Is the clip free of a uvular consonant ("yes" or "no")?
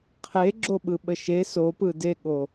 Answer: no